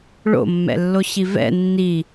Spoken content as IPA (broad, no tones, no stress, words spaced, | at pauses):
ɭo̰mːɛ̰lːoɕi vɛ̰ nːi